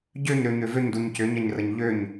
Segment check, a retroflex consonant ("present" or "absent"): absent